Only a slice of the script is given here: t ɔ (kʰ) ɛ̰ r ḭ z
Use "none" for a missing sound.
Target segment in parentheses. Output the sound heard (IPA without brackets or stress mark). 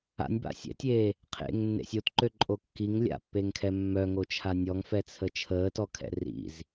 kʰ